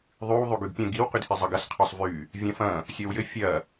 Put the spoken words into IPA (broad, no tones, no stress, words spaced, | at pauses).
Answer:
ðˤyw ðˤyɡyɡpʲə̃ ɡiw qydhizˤəɡɐs qʰœsˤvy | vʲɐ̃fɐ̃ | sʲɔwjɘ fʲɐ